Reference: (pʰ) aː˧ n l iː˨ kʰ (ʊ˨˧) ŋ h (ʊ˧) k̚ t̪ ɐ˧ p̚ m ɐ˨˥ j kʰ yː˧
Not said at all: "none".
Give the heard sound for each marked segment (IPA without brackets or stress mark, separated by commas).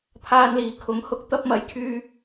pʰ, ʊ˨˥, ʊ˧